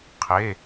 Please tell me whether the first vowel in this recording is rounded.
no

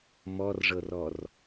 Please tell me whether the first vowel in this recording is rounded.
yes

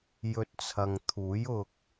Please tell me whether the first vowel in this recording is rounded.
yes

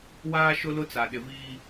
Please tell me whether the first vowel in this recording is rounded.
no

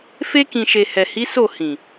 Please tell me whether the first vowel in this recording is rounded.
no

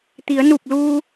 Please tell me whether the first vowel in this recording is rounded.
no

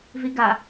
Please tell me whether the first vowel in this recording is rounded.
no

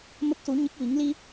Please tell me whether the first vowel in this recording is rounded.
no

